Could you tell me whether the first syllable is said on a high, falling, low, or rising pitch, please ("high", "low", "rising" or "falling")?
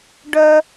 high